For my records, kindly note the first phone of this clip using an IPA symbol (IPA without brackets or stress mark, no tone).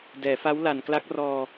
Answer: d